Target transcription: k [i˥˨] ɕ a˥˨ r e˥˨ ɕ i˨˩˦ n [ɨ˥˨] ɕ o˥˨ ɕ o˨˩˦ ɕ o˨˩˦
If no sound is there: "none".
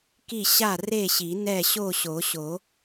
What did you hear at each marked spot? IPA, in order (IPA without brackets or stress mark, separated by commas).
i˥˨, ɛ˥˨